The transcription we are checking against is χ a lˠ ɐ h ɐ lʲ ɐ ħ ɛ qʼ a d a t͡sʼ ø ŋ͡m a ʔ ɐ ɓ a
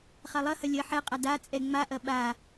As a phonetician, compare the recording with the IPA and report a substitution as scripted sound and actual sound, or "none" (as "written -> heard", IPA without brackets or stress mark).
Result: ø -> ɛ